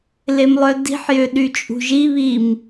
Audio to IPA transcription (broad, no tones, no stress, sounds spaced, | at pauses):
l e m lˠ œ d i̤ ħ j ø ɗ y t͡ʃʼ ṳ ʒ i β i m